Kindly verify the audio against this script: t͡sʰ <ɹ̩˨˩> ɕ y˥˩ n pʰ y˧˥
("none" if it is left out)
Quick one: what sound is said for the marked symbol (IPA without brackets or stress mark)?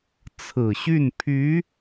ɹ̩˨˩